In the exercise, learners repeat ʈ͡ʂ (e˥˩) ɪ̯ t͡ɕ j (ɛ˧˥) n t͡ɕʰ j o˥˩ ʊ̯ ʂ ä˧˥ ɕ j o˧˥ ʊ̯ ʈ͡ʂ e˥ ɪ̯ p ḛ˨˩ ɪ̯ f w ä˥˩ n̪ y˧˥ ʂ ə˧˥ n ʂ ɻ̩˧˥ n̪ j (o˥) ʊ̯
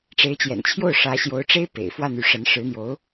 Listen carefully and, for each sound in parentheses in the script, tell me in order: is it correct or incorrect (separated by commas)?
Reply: incorrect, incorrect, incorrect